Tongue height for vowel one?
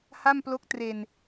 low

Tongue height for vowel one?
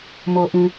mid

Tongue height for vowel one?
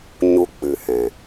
high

